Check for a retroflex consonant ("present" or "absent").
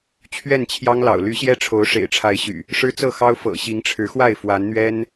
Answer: present